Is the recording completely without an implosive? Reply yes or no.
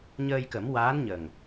yes